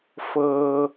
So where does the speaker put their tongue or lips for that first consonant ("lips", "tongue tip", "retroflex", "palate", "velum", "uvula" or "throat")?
lips